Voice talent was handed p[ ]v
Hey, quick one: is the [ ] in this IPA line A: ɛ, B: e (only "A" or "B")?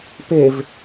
B